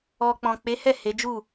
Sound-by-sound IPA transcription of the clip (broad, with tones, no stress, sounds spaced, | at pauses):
ɔ˨ k͡p ɔ̃˨ k͡p e˨˦ h ɛ˦˨ h e˨˦ d͡ʒ u˦˨